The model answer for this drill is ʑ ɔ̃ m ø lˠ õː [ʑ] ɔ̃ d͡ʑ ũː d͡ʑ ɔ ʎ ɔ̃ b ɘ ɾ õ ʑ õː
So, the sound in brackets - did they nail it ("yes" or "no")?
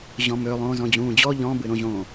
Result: no